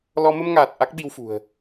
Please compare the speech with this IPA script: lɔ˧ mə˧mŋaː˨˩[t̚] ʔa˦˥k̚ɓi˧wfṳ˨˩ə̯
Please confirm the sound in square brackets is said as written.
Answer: yes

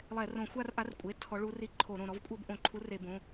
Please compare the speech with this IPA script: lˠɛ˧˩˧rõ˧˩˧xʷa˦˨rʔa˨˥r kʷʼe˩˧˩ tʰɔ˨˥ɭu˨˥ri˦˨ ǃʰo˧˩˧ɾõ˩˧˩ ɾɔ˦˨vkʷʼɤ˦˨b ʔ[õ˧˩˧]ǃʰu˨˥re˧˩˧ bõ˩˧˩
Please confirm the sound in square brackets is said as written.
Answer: yes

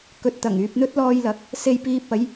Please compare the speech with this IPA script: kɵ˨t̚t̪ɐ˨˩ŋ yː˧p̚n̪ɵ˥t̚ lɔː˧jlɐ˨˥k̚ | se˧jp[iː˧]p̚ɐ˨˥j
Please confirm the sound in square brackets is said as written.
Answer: yes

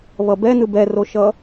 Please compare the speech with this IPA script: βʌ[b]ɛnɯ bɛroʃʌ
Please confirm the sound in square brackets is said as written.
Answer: yes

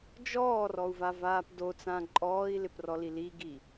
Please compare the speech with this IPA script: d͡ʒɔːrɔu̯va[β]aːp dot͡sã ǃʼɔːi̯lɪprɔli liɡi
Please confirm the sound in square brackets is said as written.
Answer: no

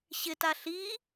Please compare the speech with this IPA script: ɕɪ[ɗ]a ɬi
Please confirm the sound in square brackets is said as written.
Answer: no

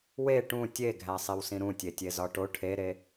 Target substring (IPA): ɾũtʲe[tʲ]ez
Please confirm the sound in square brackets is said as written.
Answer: yes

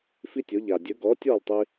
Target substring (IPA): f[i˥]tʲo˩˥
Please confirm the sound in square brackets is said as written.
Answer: yes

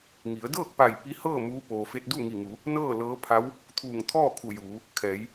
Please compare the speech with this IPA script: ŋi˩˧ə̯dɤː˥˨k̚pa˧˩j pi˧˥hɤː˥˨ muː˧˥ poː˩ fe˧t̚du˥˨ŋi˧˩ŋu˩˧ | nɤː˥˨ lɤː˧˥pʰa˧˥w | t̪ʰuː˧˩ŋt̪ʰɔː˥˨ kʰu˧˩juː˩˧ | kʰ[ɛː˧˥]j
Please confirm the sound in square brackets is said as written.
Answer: no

